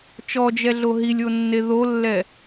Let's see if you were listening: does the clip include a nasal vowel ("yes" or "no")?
no